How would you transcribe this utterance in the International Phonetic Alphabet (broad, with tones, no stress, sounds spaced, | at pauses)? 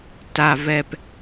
t a˩ v ɛ˩ p